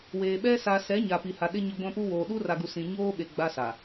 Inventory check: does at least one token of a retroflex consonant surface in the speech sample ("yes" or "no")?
no